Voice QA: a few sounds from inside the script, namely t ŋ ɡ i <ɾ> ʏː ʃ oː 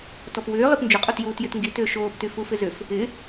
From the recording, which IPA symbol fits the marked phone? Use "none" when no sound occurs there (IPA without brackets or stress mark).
t